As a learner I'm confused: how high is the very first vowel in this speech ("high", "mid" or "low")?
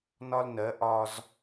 low